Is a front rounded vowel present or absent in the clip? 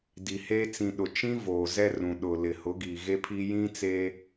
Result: absent